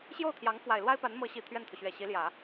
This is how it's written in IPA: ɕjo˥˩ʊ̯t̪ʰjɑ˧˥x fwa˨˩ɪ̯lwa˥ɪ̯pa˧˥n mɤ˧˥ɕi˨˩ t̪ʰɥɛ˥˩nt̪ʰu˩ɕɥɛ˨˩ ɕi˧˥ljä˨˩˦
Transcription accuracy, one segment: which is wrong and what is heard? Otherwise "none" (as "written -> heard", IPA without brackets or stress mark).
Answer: x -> ŋ